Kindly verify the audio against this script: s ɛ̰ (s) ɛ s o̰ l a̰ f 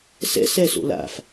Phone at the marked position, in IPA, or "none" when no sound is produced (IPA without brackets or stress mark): s